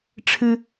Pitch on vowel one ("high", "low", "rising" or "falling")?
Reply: high